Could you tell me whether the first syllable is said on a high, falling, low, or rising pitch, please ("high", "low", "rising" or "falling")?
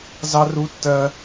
high